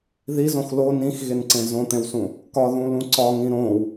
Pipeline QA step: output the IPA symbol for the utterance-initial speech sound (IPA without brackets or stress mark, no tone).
ð